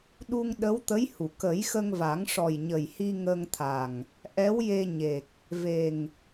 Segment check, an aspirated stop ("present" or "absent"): present